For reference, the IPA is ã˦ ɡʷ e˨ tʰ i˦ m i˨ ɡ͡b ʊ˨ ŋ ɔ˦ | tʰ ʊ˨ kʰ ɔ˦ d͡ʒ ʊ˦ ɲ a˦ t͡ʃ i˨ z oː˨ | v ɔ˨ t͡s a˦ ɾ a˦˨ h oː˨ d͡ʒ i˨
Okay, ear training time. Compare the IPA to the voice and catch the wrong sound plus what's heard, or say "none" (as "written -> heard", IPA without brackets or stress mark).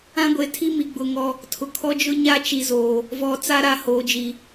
none